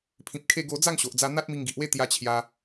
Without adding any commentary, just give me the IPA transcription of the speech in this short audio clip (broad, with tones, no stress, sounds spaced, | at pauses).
pʰ ĩ˨ p̚ kʰ e˧ ɡ o˧ d͡z a˥˧ ŋ ɕ o˨ ʔ d͡z a˧ n̪ a˦ t̚ m i˧ ŋ ɡ i˨ ʔ w e˥˧ t̪ j a˧ t͡ɕʰ j a˧